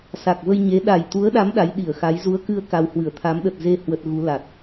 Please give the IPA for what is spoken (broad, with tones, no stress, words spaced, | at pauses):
sa˨˩k̚və˧jɲe˨˦ ɗa˨˩jt̪u˨˦ə̯ɗa˨˦m ɗa˨˦jɗi˧˩ə̯xa˨˦j zu˨˦ə̯kɨ˧ə̯ka˨˩w hwɨ˧˩ə̯t̪ʰa˨˦mɗə˨˩t̚ze˧ hwə˨˩t̚ ɣu˨˦la˨˩t̚